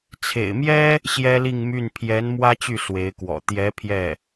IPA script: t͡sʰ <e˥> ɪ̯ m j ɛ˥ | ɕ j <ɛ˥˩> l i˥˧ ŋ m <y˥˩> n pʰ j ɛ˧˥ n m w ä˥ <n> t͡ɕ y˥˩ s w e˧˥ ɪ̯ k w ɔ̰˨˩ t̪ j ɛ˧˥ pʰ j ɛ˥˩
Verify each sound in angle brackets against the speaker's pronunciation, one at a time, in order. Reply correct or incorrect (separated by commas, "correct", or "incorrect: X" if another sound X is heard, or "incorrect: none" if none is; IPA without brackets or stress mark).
incorrect: ḛ˨˩, incorrect: ɛ˥, correct, incorrect: none